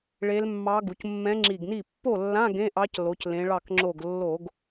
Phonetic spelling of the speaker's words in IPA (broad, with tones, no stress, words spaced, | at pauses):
ɭe˧˥lmːɑ˧˥ ɡu˩˧cmːɛ̃˧˥ŋ͡ǁi˧˩ɡni˥˩ pːo˥˩lːã˧˥˧ ɡẽ˧˥˧ʔɑ˧˥c lo˩˧clẽ˩˧ɭɑ˧˩k ŋ͡ǁo˧˩ɡlːo˧˩˧ɡ